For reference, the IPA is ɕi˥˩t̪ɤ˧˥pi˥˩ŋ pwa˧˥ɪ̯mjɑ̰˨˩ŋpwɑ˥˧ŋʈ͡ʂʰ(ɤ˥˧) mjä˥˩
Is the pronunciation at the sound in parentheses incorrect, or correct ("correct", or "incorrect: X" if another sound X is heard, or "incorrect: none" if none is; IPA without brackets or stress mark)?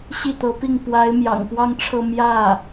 correct